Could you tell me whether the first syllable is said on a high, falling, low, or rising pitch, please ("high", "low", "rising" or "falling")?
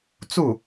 falling